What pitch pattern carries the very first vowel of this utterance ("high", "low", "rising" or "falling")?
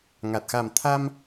low